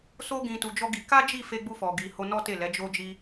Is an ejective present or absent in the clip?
absent